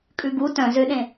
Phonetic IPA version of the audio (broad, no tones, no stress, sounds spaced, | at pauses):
kʼ ʉ ɡ u t œ̃ z ø ɗ ẽ